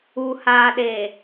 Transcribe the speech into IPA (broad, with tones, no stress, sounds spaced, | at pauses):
u˨ h aː˨ ɗ e˨